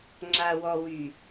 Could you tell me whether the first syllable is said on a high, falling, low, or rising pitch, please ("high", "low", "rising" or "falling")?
low